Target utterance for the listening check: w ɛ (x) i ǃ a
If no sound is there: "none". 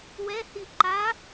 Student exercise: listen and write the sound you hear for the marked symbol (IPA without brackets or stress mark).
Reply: h